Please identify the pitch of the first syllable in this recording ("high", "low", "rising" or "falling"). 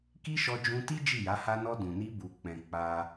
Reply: high